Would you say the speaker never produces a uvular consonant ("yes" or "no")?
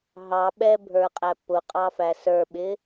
no